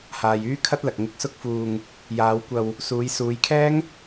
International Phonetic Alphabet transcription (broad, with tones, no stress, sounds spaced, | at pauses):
h aː˨ j yː˥ kʰ ɐ˥ t̚ l ɐ˨ k̚ ŋ ɪ˧ k̚ s ʊ˥ k̚ f uː˧ ŋ | j aː˨˧ w kʷ ɐ˧ w | s uː˨˧ j s uː˨˧ j kʰ ɛː˥ ŋ